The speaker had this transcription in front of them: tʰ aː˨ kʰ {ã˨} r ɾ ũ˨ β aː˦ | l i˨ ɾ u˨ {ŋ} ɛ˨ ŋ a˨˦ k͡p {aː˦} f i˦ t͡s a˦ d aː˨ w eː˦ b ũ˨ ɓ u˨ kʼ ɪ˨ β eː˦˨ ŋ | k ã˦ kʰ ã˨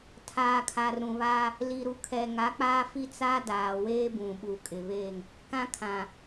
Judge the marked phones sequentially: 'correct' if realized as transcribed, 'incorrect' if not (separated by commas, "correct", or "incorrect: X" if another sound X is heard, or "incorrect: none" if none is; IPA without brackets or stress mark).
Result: incorrect: a˨, incorrect: kʰ, correct